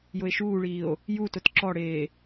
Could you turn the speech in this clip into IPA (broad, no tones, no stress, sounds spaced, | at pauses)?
j ʊ e̯ ʃ uː ɭ iː o̯ | j u t ʊ t ǁ ɔ ɽ eː